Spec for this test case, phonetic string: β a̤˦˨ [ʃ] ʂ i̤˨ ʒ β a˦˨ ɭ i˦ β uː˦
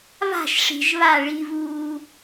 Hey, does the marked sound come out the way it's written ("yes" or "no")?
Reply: yes